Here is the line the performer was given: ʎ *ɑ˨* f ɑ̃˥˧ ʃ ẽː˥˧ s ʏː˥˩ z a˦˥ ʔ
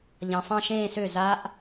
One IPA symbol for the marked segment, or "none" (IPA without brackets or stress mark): ɑ̃˨